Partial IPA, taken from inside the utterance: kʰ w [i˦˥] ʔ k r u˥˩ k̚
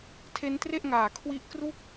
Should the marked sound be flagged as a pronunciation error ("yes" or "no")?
no